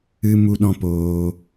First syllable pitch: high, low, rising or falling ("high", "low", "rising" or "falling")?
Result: high